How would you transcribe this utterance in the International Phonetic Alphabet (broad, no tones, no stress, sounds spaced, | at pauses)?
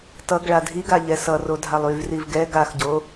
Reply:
t ʌ ɡ ɭ a dʱ i ɡ a ʎ ɛ s ʌ r o dʱ a lˠ y v r i v ɡ ɛ ɡ a x ɟ o